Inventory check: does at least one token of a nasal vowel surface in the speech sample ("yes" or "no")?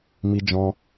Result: yes